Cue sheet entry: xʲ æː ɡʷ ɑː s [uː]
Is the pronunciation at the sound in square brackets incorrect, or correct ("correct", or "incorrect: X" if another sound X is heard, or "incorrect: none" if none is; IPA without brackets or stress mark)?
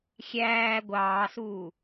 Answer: correct